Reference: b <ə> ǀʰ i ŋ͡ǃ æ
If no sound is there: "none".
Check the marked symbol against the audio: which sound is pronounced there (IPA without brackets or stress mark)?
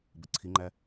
ə